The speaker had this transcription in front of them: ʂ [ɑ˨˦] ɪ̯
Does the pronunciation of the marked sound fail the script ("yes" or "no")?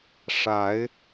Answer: yes